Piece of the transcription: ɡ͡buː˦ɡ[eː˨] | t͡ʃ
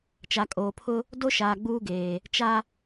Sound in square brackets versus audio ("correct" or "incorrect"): correct